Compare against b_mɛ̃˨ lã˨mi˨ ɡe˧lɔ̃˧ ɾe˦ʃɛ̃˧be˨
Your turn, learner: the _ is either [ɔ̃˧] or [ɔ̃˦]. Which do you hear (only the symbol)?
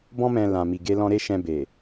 ɔ̃˧